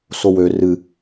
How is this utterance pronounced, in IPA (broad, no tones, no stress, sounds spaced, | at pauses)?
s o w ø r ɨ